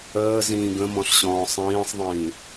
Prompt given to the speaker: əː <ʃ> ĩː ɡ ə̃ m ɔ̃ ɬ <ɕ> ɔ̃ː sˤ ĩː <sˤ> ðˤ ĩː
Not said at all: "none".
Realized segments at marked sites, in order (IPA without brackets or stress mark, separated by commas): z, ɕ, sˤ